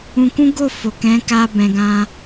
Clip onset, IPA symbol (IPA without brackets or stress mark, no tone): ũ